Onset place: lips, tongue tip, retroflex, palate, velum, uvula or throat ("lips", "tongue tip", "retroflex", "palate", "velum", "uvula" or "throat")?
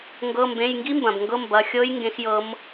velum